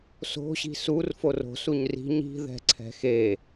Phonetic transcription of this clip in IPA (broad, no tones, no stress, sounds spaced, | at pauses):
s o̤ ɕ i̤ s u r f o r o̤ s u ɲ r i̤ ɲ i̤ ð ɛ̤ ǀʰ ɛ̤ x e